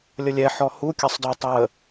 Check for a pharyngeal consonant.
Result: present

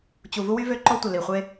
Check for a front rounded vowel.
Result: present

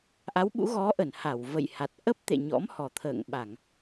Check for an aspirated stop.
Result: present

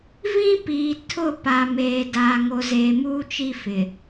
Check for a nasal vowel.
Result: present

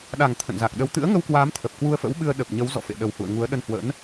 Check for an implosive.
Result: present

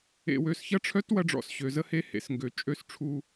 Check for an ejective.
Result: present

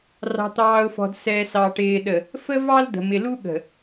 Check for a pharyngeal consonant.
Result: absent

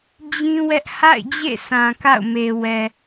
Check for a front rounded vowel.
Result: absent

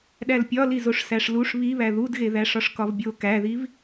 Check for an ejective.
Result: absent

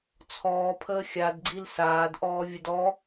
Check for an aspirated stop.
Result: present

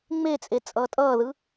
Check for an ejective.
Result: present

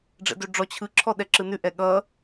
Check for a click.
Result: present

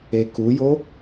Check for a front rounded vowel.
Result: absent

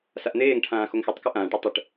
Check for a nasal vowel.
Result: present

